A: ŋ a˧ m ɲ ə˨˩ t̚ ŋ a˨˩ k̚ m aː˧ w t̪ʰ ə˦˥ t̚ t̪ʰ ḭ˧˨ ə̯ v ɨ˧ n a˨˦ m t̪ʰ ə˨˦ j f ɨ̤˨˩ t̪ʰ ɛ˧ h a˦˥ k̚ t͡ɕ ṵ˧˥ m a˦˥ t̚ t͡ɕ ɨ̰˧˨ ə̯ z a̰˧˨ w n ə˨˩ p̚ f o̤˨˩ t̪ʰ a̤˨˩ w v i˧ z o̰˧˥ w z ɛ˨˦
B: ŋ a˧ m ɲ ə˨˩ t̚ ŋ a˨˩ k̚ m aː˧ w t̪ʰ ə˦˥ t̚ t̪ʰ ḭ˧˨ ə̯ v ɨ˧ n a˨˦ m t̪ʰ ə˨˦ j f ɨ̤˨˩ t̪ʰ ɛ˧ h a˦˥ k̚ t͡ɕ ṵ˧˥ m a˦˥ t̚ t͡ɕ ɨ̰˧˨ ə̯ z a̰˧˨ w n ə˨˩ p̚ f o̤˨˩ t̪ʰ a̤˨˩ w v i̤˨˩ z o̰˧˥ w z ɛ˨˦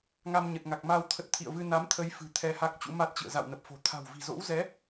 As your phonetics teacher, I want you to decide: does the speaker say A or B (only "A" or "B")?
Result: B